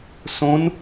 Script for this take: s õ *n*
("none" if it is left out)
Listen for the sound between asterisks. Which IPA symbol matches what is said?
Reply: n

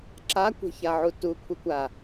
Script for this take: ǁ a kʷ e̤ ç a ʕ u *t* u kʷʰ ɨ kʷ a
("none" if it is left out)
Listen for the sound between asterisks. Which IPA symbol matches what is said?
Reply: t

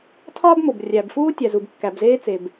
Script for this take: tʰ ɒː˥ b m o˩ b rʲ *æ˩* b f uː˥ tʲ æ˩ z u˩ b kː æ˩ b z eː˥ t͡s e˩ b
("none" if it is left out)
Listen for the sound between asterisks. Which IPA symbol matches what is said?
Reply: æ˩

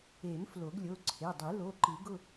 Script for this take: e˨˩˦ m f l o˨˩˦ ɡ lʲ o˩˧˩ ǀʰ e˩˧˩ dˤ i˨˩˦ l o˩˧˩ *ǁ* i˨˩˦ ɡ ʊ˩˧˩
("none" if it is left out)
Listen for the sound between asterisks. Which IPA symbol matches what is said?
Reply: ǃ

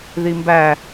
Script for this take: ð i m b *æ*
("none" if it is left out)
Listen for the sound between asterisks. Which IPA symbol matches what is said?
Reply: æ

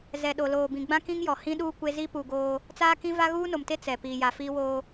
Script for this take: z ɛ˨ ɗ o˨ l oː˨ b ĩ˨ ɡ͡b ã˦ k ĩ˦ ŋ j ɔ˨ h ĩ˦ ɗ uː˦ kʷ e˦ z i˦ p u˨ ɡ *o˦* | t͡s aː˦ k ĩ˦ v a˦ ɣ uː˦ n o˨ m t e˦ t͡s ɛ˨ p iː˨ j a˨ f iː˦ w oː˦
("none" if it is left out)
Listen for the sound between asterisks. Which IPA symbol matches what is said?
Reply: oː˦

